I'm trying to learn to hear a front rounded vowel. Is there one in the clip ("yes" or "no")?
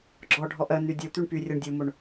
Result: yes